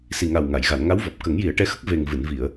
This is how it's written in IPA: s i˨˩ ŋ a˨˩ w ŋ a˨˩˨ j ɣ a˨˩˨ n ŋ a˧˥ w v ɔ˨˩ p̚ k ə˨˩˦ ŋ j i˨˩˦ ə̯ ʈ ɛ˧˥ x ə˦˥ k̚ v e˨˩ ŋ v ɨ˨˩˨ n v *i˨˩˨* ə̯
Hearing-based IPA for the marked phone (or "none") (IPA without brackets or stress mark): i˨˩˨